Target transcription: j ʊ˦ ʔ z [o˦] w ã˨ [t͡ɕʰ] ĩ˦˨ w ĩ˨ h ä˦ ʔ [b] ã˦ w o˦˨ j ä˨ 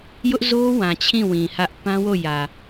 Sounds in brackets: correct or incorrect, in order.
correct, correct, incorrect: p

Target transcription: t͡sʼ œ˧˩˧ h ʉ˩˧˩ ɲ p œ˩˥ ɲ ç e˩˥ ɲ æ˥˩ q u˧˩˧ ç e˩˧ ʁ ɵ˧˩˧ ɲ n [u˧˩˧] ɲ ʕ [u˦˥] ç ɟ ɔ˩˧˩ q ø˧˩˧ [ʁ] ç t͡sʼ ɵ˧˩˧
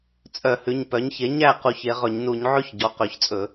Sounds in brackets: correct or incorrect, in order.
correct, incorrect: ʉ˦˥, incorrect: none

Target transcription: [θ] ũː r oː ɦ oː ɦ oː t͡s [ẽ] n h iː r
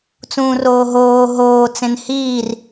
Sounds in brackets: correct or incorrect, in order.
incorrect: t͡s, correct

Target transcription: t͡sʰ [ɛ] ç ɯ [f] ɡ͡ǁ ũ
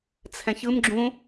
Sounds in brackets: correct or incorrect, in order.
incorrect: ɛ̃, incorrect: m

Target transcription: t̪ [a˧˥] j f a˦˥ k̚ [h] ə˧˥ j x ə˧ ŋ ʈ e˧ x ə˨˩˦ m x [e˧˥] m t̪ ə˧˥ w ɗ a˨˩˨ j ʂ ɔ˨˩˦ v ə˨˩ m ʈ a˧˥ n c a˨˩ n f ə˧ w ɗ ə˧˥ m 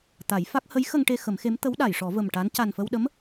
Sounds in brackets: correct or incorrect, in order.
incorrect: a˨˩˦, correct, correct

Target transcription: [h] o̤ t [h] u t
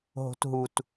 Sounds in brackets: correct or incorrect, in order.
incorrect: ɦ, incorrect: ɦ

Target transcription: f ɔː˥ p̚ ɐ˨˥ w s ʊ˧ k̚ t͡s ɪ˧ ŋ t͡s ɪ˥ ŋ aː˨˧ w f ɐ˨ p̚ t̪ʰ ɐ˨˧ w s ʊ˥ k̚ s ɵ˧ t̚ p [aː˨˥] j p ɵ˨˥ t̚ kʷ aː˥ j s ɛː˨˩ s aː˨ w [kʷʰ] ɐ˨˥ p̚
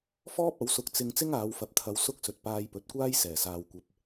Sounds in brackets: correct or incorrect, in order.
incorrect: aː˧, incorrect: kʷ

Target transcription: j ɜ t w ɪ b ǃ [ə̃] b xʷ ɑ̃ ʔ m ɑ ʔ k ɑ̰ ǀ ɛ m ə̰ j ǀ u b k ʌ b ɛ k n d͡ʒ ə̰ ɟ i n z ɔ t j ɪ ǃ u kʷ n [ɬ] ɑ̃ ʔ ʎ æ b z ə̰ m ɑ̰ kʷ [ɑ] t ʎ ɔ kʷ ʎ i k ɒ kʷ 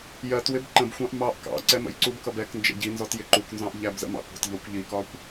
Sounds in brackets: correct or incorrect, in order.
correct, incorrect: z, incorrect: ɑ̤

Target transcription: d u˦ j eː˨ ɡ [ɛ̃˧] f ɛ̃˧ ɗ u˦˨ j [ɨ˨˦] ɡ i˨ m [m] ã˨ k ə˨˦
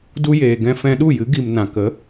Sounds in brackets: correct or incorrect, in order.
correct, correct, incorrect: n

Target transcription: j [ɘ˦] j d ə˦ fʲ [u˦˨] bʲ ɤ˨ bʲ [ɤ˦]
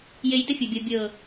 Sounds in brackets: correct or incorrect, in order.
incorrect: e˦, incorrect: u˨, incorrect: ɤ˨

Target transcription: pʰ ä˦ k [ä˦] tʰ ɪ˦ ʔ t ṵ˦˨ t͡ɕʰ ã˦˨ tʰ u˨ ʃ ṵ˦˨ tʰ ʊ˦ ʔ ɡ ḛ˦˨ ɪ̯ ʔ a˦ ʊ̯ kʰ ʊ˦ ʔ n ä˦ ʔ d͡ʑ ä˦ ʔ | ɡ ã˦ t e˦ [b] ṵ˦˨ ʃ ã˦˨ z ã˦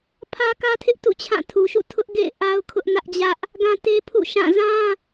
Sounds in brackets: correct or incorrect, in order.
correct, incorrect: pʰ

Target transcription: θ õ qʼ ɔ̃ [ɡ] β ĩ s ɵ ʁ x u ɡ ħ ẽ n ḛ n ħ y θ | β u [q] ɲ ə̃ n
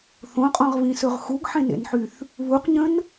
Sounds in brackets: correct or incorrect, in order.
incorrect: ʁ, correct

